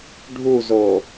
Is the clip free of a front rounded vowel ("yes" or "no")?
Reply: yes